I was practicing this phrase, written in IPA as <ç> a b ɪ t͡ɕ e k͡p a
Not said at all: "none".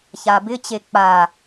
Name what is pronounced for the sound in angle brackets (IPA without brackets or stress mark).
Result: ç